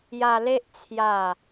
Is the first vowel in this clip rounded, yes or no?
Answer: no